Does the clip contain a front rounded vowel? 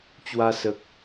no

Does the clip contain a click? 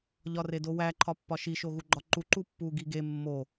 yes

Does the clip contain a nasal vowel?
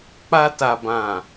yes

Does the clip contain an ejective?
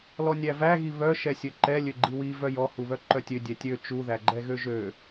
no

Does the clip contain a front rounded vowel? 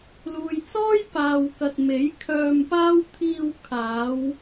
yes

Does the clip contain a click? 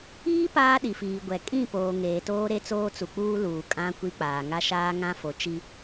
no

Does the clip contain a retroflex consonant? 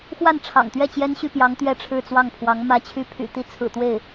yes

